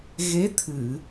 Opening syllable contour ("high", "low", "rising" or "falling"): rising